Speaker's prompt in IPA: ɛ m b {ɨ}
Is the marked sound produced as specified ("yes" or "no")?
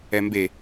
no